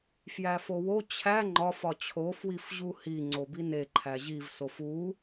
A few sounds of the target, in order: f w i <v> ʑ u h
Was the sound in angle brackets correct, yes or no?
no